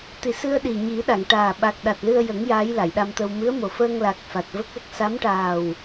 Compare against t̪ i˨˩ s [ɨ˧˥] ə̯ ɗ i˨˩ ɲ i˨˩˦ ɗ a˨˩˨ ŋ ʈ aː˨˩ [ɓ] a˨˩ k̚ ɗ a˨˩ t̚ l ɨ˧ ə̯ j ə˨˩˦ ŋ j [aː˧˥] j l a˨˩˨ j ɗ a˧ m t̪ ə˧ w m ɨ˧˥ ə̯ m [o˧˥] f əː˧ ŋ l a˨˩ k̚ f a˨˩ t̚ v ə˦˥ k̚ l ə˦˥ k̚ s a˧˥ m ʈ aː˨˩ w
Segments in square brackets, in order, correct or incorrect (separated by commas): incorrect, correct, correct, incorrect